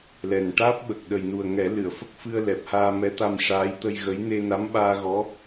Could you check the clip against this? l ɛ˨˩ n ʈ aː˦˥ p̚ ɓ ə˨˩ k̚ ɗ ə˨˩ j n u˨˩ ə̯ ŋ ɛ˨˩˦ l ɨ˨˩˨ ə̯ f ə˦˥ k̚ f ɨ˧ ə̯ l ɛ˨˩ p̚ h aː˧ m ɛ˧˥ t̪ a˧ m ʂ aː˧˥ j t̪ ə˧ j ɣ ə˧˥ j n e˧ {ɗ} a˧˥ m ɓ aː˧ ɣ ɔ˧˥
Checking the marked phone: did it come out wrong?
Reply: yes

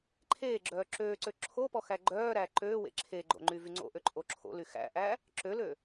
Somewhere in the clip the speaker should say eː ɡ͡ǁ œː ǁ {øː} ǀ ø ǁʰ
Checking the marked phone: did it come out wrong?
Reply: no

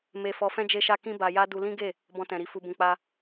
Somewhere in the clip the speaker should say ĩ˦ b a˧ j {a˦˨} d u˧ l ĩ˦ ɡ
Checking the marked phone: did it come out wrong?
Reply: yes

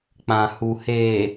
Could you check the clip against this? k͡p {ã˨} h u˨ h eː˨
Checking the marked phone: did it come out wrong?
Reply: no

